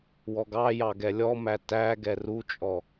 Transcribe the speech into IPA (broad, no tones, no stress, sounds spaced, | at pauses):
w ɔ ɡ ɑ j ɑ ɡ ɛ lʲ ɔ m æ t æ ɡ ɛ r u t͡ʃʼ ɔ